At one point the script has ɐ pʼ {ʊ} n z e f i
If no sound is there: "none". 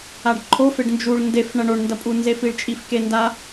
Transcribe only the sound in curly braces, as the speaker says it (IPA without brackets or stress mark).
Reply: u